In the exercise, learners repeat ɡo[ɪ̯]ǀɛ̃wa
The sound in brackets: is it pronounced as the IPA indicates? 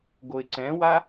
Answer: yes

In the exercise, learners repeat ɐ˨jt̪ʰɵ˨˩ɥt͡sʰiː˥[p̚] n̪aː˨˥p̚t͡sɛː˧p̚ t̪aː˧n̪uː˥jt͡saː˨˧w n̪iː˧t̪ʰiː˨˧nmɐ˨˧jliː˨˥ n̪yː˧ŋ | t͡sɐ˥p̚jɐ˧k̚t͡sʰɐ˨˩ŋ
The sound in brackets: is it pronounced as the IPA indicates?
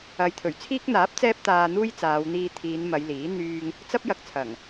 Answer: no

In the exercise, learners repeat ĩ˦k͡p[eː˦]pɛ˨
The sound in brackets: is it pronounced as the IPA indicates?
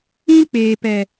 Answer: no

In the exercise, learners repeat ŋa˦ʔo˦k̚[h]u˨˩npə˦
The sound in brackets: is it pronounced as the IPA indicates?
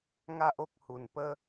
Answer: yes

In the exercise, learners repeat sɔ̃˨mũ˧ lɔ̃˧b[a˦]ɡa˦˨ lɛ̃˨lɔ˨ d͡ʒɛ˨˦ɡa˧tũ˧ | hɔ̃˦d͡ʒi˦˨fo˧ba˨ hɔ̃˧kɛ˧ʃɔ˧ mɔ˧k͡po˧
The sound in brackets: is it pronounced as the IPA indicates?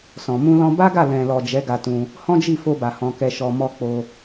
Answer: yes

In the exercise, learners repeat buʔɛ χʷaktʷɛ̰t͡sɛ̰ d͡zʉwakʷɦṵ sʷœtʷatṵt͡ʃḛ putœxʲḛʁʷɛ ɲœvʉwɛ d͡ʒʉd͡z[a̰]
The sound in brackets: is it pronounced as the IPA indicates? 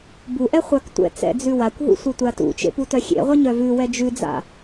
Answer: yes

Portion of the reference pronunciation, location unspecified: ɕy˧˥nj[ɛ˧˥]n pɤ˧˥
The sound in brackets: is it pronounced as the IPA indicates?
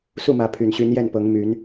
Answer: no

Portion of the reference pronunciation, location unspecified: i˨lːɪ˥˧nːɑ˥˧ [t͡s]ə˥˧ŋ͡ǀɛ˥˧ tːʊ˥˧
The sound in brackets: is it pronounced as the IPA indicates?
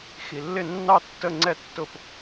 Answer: no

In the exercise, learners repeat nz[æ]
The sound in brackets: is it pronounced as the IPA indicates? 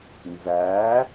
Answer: yes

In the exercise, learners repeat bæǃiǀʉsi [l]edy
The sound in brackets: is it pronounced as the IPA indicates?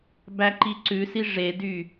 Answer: no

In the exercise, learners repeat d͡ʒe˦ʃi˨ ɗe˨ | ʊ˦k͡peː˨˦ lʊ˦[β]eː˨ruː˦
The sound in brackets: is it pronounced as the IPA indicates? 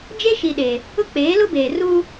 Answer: no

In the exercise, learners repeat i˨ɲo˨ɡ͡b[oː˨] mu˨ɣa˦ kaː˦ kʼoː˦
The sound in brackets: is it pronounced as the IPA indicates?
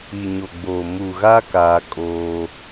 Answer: yes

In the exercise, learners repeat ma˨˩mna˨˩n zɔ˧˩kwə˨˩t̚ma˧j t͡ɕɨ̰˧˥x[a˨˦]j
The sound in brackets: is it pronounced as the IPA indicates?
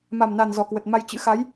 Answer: yes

